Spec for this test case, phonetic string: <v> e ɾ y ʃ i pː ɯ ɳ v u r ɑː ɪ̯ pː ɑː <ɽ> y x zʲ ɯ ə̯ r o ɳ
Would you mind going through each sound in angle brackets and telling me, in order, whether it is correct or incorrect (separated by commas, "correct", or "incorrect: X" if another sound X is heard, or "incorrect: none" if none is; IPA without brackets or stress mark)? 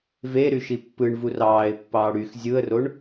correct, correct